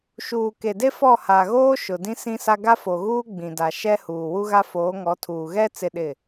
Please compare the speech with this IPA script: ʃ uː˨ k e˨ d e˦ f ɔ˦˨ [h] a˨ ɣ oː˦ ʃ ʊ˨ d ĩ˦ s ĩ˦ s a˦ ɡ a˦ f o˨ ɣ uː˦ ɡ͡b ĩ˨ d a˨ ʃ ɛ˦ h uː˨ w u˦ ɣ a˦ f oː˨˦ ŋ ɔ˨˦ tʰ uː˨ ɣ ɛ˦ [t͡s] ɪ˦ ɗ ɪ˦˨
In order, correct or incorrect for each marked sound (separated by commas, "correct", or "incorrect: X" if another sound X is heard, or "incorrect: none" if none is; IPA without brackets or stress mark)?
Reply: correct, correct